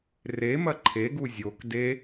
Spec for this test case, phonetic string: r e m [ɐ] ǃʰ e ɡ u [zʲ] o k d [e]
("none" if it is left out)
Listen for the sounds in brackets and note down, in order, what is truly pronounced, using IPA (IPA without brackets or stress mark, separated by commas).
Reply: ɐ, zʲ, e